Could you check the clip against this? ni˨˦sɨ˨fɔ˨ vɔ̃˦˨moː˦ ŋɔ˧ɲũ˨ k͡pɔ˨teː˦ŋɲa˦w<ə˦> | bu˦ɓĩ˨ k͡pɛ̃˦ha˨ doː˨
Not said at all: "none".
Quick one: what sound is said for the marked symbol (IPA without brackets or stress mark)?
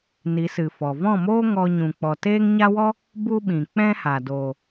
ɔ˦